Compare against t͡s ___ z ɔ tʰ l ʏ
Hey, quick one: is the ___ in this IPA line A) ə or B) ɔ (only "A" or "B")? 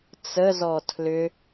A